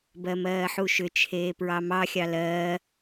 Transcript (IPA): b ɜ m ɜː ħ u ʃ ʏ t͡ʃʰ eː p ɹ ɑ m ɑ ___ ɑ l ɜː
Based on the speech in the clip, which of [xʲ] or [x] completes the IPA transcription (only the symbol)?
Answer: xʲ